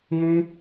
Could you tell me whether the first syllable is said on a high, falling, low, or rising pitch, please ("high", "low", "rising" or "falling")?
high